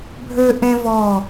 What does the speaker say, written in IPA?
bʱ ø˦ ʔ ẽ˦ v ɔ˧˩

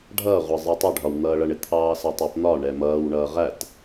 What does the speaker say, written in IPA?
ɖʱ ʌː ʁʷ ɑ zˤ ɜ tˤ ʊ ɖʱ ɒ w n̪ ʌː ɭ ʌ ɳ ɪ t̪ʰ ɑː s ɜ tˤ ɑ p n̪ ɒ ɳ ɛ m ʌː w ɳ ʌː ʁ æ t

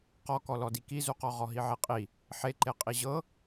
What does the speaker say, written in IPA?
q ɔ k ɔ l ɔ d i k i z u q ɔ ʁ ɔ ɦ i ʕ e qʼ i | ħ e ǃ e qʼ i ʑ ɤ

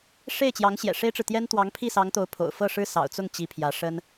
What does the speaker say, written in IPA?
ʂ e˥˩ ɪ̯ t͡ɕ j ɑ˧˥ ŋ ɕ j ɛ̰˨˩ ʂ e˥ ɪ̯ ʈ͡ʂ ɻ̩˨ t̪ j ɛ˥ n t̪ w ɑ˧˥ ŋ pʰ i˥˩ s ɑ˧˥ ŋ t̪ o˧˥ ʊ̯ pʰ o̰˨˩ ʊ̯ f ɤ˥˩ ʂ ɻ̩˥ s ɑ̰˨˩ ʊ̯ t͡s ʊ˥˩ ŋ t͡ɕ i˧˥ pʰ j ä˧˥ ʂ ə˥ n

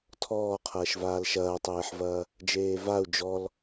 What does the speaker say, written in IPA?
tʰ ɔː qʰ ɐː ʃ v aː l ʃ ɐː tˤ eː ħ v ɐː | d͡ʒ eː v a u̯ d͡ʒ ɔ l

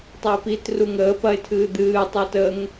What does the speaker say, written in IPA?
tˤ ɐ ɪ̯ p i t r u ŋ əː p ɐ ɪ̯ tʰ ɨː d̪ ɨː tˤ u t ə ŋ

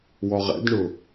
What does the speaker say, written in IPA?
w ɔ ʁ ɛ̰ d ɳ ʊ

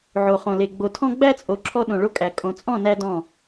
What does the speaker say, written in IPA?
ʕ o˨ χ õ˨ l e˨ ɡ͡b o˨ tʰ ɔ̃˦ ɡ͡b æ˦ t͡sʼ o˨ ǁʰ ɔ˦ ɗ õ˨ ɭ o˦ kʼ æ˨ kʼ õ˨ t͡sʼ ɔ̃˦˨ n æ˦ d ɔ̃˦˨

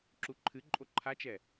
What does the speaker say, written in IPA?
ǁ u ǃʰ ɨ ǃʼ o ǃʰ a t͡ʃ ɛ

